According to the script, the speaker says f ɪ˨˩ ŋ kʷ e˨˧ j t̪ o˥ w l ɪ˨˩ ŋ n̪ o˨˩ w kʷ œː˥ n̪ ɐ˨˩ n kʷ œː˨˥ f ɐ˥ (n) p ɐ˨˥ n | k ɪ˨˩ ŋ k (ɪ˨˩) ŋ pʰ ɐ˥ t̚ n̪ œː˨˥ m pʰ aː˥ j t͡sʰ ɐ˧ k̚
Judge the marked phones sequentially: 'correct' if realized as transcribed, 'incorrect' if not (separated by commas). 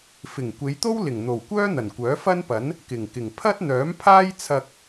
correct, correct